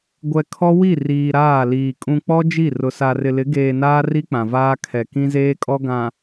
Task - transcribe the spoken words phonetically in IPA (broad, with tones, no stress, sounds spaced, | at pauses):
ɡʷ ɛ˨ kʰ ɔ˦ w i˦˨ r iː˨ ɾ aː˦˨ l iː˨ kʼ ũ˨ k͡p ɔ˦ d͡ʒ i˦˨ r ʊ˨ s a˨ r ɪ˨ l ɪ˨˦ ɡ eː˨ n aː˦ r i˦ k͡p ã˨ v aː˦ kʰ ɛ˨ k ĩ˦ z eː˦ kʼ ɔ˦ ɡ ã˨